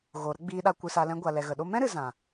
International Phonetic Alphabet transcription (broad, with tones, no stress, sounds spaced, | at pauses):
ɣ o˨ ɾ ə˦ ɡ͡b iː˧ ɗ a˧ kʷ ɨ˧ s a˧ l ɛ̃˧ ɡʷ a˨ l ɛ˨ ɣ ə˨ ɗ o˦ m ɛ̃˦ ɾ ɨ˨ z ã˨